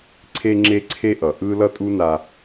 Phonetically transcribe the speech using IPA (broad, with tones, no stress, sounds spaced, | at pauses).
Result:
ǀʰ e˥ ŋ͡ǁ e˥ ǀʰ e˥ ʔ ʌ˩ ʔ ɯ˥ l ʌ˥ tʼ u˥ n a˧